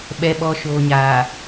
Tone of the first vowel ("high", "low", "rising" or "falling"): low